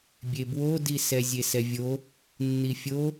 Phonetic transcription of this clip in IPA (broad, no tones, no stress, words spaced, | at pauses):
bʲebwodisɛ zʲesɛvʲo | nːifʲo